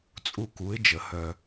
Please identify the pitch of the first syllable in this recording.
falling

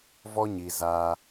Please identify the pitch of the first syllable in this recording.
high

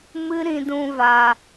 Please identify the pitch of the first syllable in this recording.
high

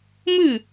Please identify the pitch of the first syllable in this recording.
falling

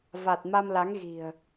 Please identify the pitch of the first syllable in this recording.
low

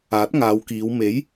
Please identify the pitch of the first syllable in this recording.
rising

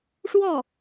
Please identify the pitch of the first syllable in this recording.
falling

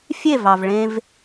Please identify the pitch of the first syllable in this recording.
falling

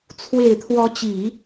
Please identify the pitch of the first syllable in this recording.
low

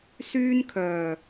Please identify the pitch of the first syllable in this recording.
high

